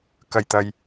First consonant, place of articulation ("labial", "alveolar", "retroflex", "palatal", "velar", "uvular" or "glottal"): velar